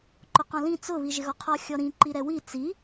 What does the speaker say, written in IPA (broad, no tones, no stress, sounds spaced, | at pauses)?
ǃ ʊ q ɔ̃ l ĩ t͡s ʊ β i ʒ ɪ ɣ ɔ qʰ ɔ xʲ ɔ ɾ ĩ ǃ i ɾ ɛ w i t͡s i